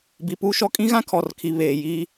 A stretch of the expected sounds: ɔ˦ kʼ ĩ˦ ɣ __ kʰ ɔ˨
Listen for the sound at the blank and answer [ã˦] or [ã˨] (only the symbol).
ã˦